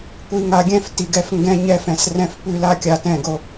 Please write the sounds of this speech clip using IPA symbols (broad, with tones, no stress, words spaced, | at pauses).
kʷi˨ ŋa˨ɡʲɛ̃˦˨f ti˨ɡɛ˧f ŋɡɛ̃˧ ɲɛ˧fɛ̃˨s rɛ̃˧fpʉ˦˨la˦kʲa˧ tɛ̃˦˨ɡo˧